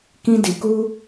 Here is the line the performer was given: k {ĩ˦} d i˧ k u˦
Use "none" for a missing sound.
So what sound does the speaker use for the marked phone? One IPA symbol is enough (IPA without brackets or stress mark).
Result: ĩ˦